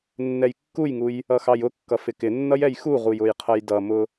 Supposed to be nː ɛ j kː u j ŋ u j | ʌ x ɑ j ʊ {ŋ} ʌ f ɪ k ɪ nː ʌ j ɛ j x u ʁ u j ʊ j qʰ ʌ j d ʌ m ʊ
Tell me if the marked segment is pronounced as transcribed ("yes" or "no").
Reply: no